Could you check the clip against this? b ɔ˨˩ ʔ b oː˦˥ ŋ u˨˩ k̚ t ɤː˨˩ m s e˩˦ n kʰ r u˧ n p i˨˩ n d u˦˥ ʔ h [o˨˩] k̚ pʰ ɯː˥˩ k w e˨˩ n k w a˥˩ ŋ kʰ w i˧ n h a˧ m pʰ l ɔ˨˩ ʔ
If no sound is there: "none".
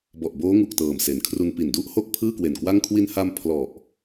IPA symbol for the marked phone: o˥˩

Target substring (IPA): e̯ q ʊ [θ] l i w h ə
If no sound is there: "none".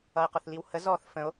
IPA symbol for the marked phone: θ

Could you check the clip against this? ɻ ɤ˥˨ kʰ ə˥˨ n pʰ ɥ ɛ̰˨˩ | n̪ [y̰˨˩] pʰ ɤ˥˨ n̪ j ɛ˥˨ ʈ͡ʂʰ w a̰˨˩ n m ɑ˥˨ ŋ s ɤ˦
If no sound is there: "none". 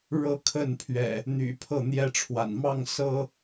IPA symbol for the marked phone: y̰˨˩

